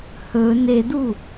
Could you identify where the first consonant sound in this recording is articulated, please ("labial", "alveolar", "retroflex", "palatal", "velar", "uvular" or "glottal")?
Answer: glottal